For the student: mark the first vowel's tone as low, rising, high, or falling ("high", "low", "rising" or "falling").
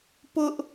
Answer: high